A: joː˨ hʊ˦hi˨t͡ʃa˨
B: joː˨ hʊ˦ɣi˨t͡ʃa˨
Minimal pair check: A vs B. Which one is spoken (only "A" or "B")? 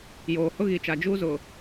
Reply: B